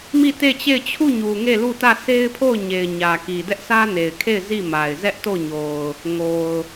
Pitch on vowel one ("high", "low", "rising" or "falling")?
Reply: falling